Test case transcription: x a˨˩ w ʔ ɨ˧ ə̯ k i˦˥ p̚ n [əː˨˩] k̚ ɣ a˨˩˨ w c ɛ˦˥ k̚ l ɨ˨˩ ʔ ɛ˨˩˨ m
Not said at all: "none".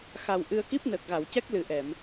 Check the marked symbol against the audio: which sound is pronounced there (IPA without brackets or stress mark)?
əː˨˩